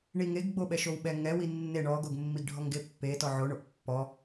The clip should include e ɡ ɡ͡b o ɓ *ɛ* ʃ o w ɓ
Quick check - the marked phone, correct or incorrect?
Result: correct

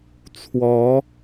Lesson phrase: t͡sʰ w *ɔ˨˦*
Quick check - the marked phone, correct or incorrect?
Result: correct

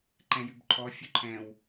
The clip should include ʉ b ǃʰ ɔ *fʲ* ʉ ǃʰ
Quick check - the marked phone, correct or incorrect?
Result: correct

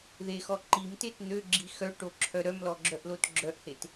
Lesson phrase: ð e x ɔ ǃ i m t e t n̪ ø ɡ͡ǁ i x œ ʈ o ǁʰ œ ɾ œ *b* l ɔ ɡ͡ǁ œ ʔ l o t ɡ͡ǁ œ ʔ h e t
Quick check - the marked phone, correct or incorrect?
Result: incorrect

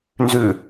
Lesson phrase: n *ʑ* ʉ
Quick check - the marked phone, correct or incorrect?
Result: incorrect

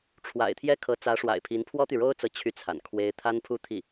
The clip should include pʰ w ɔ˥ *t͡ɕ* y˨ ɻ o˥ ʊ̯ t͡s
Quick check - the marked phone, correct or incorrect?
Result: incorrect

